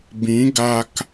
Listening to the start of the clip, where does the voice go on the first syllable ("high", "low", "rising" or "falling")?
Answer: rising